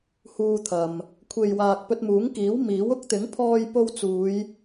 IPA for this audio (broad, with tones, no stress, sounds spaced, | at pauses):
h uː˧ t̪ʰ ɐ˨ m | kʷʰ e˨ j w aː˨ k̚ p ɵ˧ t̚ m uː˨˥ ŋ k iː˨˥ w m iː˨˥ w ʊ˧ k̚ t̪ ɪ˨˥ ŋ pʰ ɔː˧ j p o˧ w t͡s uː˨˧ j